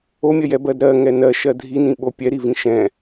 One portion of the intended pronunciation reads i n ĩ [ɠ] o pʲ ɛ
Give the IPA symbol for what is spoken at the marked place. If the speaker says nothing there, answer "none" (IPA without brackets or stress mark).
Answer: ɓ